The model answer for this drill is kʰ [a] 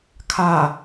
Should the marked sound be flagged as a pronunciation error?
no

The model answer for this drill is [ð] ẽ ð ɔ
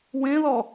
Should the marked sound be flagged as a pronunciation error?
yes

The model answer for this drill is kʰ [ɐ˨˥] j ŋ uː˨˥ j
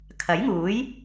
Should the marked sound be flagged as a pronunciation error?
no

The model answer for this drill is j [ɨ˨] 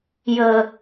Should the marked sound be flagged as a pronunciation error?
yes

